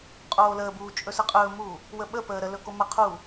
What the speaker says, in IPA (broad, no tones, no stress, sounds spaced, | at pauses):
qʼ oː l əː b uː t͡ʃʼ ɵ s ə qʼ ɵː m uː | w ə ɓ ə p əː ɾ ə l ɵ k o m ə qʰ uː